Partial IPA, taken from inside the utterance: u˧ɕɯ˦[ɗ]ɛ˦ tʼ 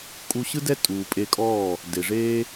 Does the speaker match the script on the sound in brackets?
no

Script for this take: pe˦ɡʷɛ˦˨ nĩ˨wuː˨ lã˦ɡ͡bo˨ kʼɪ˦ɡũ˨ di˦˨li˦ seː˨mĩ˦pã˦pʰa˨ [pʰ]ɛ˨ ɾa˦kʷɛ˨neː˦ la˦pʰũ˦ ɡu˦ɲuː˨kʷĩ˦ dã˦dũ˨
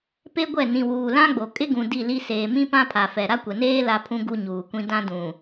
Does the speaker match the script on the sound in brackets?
no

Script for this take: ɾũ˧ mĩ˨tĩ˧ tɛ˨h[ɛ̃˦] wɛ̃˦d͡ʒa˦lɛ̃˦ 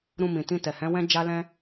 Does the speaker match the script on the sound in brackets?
no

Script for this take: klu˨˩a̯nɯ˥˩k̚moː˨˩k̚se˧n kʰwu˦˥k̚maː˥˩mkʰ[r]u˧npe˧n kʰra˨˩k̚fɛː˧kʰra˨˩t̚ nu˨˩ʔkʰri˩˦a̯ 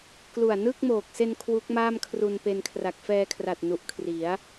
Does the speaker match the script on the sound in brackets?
yes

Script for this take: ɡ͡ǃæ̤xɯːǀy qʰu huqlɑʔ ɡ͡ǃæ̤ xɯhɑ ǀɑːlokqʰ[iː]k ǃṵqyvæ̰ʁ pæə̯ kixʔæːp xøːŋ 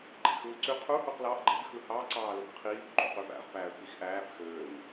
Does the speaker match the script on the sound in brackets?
yes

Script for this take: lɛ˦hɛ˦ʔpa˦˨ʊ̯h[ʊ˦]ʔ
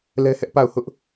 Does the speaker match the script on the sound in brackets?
yes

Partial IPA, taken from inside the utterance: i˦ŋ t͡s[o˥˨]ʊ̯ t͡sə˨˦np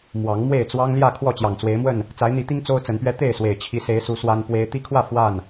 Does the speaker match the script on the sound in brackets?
no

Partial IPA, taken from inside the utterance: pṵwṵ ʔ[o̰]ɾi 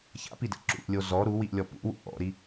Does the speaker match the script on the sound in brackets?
no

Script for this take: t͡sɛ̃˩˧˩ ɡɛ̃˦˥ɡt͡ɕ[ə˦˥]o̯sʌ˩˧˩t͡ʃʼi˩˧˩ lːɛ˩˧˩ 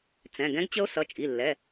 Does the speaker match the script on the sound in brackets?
yes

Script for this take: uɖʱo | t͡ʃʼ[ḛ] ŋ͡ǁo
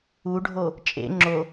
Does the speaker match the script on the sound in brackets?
yes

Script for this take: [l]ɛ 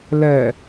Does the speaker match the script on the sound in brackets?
yes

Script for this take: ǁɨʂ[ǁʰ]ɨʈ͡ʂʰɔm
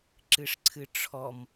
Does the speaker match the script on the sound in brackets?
no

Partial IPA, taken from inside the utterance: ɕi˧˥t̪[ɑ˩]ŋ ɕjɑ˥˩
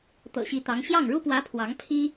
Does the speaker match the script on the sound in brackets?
no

